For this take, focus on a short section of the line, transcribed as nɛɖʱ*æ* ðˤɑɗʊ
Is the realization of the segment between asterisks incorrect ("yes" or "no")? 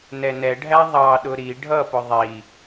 no